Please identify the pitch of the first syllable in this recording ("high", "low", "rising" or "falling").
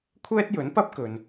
high